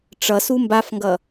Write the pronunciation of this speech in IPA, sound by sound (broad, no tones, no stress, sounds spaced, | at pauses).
ʈ͡ʂ ʌ s u m b a f ŋ ɡ ʌ